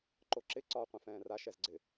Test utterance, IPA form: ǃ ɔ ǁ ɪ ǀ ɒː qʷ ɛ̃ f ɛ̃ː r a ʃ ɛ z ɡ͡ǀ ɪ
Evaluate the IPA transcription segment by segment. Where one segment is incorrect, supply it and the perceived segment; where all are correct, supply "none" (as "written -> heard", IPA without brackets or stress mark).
ɔ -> o